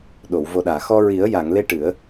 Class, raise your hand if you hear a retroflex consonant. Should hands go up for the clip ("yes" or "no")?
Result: yes